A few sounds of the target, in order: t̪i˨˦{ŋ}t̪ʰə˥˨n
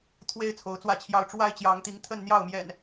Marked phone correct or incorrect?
correct